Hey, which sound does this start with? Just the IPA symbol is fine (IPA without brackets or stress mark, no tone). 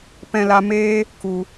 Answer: p